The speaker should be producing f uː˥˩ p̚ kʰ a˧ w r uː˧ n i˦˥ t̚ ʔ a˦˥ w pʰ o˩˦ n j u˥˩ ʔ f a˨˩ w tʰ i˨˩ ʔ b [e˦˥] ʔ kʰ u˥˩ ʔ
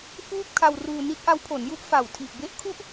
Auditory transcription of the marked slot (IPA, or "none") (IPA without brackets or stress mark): e˦˥